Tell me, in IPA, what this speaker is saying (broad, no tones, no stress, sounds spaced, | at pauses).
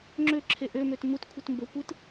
ŋ͡ǁ ø ǁʰ e ʔ ø m ø t m u t kʷʰ ɯ t m b o kʷ ɯ t